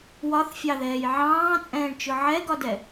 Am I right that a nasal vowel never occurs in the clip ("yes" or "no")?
no